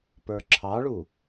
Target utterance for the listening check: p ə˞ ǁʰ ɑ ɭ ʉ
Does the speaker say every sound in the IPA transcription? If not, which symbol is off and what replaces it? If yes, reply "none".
ʉ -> u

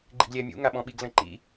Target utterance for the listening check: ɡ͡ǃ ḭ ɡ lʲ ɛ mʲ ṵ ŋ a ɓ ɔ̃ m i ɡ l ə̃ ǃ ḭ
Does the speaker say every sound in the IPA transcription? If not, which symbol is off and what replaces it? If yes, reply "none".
m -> ɓ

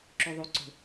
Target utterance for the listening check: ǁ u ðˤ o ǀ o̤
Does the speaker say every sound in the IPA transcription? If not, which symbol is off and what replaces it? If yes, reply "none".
o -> u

